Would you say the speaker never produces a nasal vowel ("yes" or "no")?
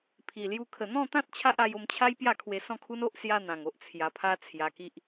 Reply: no